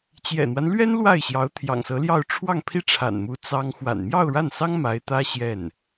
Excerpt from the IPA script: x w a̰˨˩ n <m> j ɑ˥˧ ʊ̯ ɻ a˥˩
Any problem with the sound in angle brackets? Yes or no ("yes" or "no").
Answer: no